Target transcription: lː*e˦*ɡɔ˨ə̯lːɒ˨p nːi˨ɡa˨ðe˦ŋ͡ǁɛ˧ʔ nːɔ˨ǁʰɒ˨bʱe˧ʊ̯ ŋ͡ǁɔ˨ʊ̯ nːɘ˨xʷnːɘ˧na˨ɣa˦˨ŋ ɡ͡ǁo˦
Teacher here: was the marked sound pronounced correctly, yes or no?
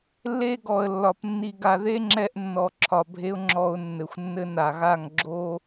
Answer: yes